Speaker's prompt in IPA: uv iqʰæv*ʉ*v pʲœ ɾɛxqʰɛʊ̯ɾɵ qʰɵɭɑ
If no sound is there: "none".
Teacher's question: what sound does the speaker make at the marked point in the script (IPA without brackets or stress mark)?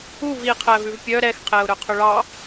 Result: ʉ